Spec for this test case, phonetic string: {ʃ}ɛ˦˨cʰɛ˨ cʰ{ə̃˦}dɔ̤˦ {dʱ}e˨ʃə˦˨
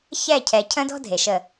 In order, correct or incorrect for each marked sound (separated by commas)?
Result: incorrect, correct, correct